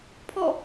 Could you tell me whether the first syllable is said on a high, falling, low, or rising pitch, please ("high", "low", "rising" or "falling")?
falling